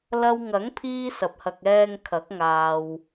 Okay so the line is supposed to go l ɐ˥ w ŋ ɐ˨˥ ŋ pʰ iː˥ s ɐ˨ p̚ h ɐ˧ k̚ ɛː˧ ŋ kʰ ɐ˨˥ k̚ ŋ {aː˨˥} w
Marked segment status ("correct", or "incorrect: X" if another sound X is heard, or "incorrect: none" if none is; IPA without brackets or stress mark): incorrect: aː˨